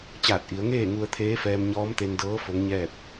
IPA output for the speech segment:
t͡ɕaː˧˩t̚ʔi˩˧ə̯ ŋeː˥˨ŋu˧ə̯ t̪ʰeː˧˥fɛː˧m ɲɔː˧˥mt̪e˧ndɤː˧˥ fo˧˥ŋɲɛː˥˨p̚

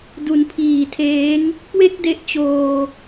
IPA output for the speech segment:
du˨˩npʰiː˨˩tʰeː˦˥ŋ | kwe˥˩k̚de˦˥ʔt͡ɕoː˧

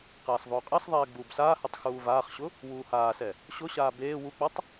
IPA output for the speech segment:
qaːsðˤoːqʼasðˤɛː ɡ͡buːbsaːhɛtˤ xuːvaːχɕʊ | wuːhaːsɛ | ɕʊɕaː beː wuk͡patˤ

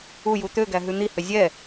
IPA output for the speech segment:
uju t̪øɡæɦʉ n̪ihø zʲɛ

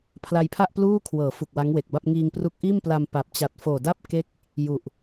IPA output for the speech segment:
pʰla˧jpʰa˥˩ʔ pluː˥˩kʰwɤː˩˦ fu˨˩k̚wa˦˥ŋwe˨˩k̚ba˥˩p̚ ŋiː˧ŋpru˦˥k̚ʔiː˥˩mpla˧m pa˨˩p̚t͡ɕa˨˩t̚ foː˨˩da˥˩p̚ ke˦˥k̚ | ju˨˩ʔ

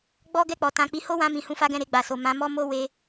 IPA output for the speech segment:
ɡ͡bɔ˦ ɡɛ˦˨k͡pɔ˨ tã˧k͡pi˧ ho˦wã˧ mĩ˨hũ˧fa˦ɡɛ̃˦˨ ɾe˧ɡ͡ba˨so˨ mã˨˦mɔ˦mo˦ we˧

